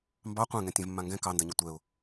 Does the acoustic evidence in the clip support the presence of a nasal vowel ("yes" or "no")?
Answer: yes